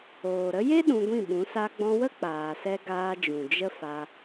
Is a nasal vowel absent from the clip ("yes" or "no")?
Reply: no